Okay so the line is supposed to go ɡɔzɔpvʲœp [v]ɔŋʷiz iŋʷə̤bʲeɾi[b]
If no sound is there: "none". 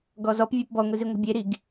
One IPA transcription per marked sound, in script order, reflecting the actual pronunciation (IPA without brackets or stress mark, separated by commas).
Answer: b, ɡ